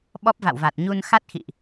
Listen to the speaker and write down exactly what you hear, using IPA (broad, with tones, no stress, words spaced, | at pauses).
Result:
ɓɔ˦˥p̚va̰˧˨wva˨˩t̚ɲu˧n xa˦˥t̚xḭ˧˨ʔ